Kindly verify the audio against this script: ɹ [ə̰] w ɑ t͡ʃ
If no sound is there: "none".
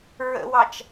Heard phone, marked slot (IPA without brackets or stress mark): ə̰